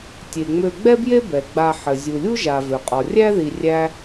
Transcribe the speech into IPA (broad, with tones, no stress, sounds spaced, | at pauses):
tʲ e˩ ŋ͡m ø˨ ɡ͡b ɛ˥ b j e˥ b ɛ˩ ɡ͡b a˨ ħ ɘ˩ zʲ u˩ lʲ u˥ ʒ a˩ v ø˩ qʼ ɔ˩ rʲ æ˥ ð i˨ rʲ æ˦